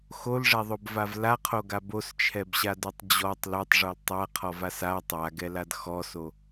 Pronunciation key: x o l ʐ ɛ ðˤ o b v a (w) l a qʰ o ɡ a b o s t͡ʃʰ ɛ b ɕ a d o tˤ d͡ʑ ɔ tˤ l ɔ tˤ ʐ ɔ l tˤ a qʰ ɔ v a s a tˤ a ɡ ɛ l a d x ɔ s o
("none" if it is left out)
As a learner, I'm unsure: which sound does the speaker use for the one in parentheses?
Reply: v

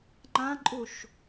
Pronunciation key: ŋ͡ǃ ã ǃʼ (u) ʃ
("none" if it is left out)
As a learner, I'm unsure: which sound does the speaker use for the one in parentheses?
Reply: u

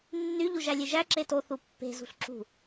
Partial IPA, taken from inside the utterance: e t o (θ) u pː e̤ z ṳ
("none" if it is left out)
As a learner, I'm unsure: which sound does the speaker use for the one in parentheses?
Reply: θ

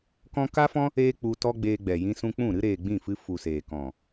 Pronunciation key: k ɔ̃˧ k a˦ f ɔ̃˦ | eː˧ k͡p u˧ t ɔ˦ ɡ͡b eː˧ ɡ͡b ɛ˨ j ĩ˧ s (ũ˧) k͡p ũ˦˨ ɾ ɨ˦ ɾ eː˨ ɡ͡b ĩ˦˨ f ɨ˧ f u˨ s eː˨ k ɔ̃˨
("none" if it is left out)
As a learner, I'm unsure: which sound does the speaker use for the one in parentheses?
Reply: ũ˧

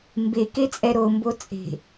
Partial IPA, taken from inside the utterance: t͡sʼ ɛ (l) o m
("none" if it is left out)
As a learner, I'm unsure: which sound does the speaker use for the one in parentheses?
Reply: ɾ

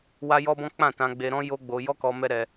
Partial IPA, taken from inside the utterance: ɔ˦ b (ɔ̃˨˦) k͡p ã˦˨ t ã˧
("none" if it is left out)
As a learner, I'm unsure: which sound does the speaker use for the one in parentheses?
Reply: ɔ̃˦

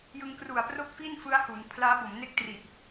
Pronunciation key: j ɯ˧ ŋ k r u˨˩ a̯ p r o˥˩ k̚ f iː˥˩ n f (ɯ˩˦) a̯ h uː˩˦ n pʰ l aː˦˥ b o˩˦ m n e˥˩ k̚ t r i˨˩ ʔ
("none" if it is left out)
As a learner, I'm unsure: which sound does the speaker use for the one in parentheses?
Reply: ɯ˦˥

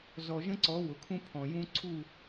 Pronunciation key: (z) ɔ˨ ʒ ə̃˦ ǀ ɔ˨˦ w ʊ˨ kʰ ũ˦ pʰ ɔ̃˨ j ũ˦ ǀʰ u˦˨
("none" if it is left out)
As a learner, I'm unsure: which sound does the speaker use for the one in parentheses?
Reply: z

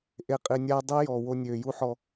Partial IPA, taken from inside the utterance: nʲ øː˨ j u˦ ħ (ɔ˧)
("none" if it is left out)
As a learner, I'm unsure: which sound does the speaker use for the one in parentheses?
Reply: ɔ˧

